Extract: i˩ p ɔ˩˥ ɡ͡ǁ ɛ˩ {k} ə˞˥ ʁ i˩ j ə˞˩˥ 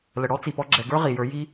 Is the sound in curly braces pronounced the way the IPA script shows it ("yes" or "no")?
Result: no